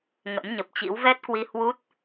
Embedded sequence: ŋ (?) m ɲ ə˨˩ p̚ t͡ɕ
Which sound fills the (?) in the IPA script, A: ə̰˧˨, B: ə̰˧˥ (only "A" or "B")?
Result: B